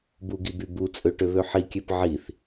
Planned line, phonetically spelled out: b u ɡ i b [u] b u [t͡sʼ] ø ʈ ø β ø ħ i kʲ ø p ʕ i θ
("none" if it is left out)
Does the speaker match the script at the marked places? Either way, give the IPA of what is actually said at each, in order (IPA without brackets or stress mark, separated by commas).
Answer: y, t͡sʼ